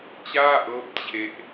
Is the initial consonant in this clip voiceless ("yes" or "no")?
yes